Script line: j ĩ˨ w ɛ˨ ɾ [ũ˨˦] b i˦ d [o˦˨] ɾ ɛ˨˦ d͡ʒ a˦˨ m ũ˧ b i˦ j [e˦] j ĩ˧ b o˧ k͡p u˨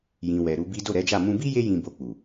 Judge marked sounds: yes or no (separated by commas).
no, yes, yes